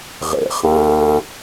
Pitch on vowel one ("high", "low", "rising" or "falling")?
low